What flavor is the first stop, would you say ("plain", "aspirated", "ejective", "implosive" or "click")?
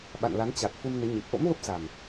implosive